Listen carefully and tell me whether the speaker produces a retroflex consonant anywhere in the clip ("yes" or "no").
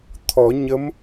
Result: no